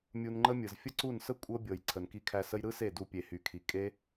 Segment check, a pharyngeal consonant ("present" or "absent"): absent